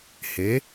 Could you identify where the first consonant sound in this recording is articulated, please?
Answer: glottal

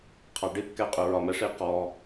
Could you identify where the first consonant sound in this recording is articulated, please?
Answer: uvular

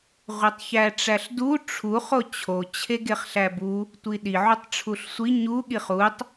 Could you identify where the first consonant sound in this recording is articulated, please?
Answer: uvular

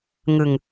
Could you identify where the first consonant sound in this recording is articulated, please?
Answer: velar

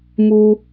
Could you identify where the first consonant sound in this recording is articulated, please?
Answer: labial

